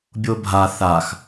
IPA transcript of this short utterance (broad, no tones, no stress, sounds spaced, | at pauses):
bʲ o bʱ a θ a x